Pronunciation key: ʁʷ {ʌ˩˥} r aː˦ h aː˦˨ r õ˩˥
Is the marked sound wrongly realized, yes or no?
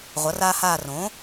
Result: no